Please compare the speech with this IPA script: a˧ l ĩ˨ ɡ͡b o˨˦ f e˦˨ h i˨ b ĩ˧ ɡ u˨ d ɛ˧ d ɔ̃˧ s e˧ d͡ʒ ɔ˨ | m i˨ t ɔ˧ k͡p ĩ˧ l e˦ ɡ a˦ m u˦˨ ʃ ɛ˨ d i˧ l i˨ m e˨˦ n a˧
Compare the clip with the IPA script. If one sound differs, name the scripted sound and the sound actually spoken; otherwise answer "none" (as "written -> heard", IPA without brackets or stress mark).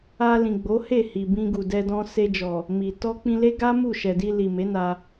f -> h